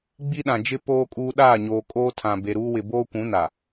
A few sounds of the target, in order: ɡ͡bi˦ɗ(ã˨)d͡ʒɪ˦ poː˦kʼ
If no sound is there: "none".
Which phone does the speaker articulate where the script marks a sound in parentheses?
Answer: ã˨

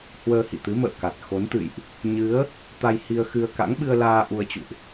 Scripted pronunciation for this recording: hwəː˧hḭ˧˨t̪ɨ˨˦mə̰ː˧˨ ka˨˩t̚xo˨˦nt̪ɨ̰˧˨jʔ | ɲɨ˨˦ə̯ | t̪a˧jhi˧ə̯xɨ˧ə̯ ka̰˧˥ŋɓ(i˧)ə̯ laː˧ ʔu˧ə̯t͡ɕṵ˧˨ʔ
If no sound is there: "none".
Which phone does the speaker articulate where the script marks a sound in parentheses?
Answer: ɨ˧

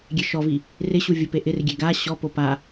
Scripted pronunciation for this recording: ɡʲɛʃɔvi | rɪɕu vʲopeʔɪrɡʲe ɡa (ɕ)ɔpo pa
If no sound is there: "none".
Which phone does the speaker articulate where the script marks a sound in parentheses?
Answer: ɕ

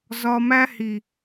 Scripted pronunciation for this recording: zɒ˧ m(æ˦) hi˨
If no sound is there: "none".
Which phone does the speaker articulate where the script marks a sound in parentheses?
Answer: æ˦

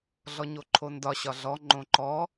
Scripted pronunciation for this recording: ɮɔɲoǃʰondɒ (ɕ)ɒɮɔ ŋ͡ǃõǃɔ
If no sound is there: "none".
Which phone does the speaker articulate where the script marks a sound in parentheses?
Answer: ɕ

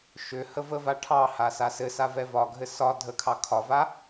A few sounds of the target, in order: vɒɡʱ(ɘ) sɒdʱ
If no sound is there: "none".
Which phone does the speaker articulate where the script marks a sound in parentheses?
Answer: ɘ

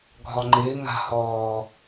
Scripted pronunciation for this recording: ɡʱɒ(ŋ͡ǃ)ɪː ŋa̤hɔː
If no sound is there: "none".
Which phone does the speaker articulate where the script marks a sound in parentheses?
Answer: ŋ͡ǃ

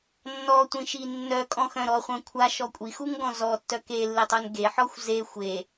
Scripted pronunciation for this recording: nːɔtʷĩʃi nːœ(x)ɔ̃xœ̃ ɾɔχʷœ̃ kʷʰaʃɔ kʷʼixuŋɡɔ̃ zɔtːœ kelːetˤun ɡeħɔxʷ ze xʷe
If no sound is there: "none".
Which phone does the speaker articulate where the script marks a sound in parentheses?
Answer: kʼ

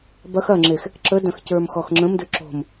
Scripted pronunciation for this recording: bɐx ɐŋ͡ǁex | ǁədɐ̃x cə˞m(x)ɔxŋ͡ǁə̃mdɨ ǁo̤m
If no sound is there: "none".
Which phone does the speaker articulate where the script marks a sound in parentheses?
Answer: x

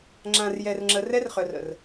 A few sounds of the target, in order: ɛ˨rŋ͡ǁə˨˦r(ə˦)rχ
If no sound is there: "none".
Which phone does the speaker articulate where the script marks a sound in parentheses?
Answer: ɛ˦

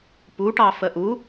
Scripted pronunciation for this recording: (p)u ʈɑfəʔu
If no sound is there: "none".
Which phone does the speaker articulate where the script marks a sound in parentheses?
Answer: p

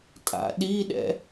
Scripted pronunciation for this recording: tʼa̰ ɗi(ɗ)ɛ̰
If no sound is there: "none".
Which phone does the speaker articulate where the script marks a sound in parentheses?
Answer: ɗ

